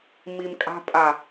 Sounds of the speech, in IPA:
m i m kʼ a̤ pʼ a

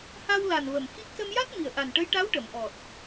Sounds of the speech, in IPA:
h a˧ w l a˨˩ n v ə˨˩ m x i˦˥ k̚ s ə˧ m j a˦˥ t̚ m i˨˩ ə̯ ʔ a˨˩ n ʈ ə˧˥ j ʈ a˧˥ w ʈ ə˨˩˨ m ʔ ɔ˨˩ t̚

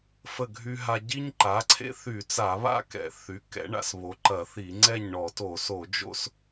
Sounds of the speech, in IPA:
f ə˥˨ ɡʱ y˦ ɦ a˦ ɟ i˦ ɲ ǃ a˩˥ ǀʰ ḛ˦ θ y˧˩˧ t͡s a˧˩˧ β a̰˥˨ k ɛ̰˧˩˧ θ y˩˥ k ɛ̰˩˥ ɳ a̰˧˩˧ s β o˩˥ ǃ ɐ˧˩˧ θ i˧˩˧ ŋ͡ǀ ɛ˥˨ ɲ ɳ ɔ˧˩˧ t o˧˩˧ s o˧˩˧ d͡ʒ o̰˦ s

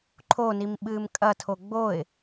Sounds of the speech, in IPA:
ǃʰ o n i m ɓ ɨː m kʼ ɐ tʰ o ɡ͡b o ɪ̯

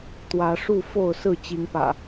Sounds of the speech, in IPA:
t̪ w ä˨˦ ʂ u˥˨ f o˥˨ ʊ̯ s ɹ̩˥˨ t͡ɕ i˨˦ ŋ p ä̰˨˩

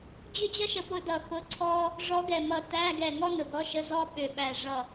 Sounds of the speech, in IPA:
d͡ʑ ʏ˥ d͡ʑ ʌ˥ ʃ ə˧˥ p ʊ˧˥ d ʌ˧˩ x ʊ˧˥˧ ǀʰ ɔ˥ | ʐ ɔ˧˥ ɡ ɛ˧˩ m ʌ˧˩ t æ˧˥˧ ɡ ɛ˧˩ ŋ ɔ˥ n ʊ˧˩ ɡ ɔ˧˥˧ ʃ ə˧˥˧ z ɔ˥ ɓ ʏ˧˩ ɓ æ˧˩ ʐ ʌ˧˩

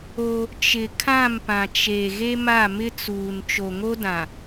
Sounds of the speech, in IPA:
o˦ | t͡ʃ ɪ˨ kʰ ã˦˨ m p ã˨ t͡ʃ e˨ ɣ e˦ m a˦˨ m ɪ˦ t͡s uː˨ n t͡ʃ o˨ ŋ o˦ d ã˨

